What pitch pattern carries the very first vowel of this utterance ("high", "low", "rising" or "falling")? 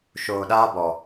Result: low